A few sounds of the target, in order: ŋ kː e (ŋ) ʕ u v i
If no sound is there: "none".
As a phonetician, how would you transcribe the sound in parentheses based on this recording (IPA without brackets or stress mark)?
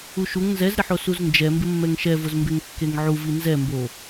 ŋ